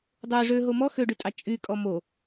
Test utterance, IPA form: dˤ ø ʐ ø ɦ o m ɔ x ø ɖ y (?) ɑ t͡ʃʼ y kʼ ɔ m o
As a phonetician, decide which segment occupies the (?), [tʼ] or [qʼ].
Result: tʼ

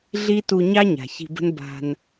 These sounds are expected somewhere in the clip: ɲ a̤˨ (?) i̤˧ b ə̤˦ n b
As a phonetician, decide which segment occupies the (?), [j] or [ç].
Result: ç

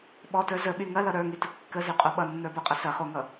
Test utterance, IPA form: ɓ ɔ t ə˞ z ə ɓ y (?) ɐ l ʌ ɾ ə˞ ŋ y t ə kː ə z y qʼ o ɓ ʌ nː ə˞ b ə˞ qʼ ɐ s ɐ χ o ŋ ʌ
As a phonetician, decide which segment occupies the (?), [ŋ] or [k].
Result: ŋ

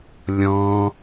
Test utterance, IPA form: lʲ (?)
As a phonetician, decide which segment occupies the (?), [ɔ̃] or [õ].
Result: ɔ̃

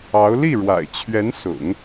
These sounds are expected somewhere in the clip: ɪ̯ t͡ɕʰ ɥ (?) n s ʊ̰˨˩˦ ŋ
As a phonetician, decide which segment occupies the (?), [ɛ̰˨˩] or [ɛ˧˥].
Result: ɛ˧˥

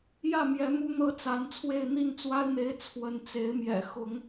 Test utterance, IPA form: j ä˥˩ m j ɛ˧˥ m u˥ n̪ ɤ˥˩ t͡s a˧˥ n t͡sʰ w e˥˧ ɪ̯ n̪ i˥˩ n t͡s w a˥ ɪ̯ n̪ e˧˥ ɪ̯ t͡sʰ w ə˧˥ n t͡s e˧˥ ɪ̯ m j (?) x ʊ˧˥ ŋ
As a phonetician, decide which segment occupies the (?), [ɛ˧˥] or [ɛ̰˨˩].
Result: ɛ̰˨˩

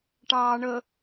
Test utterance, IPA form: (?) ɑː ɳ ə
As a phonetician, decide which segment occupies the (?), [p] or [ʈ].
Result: ʈ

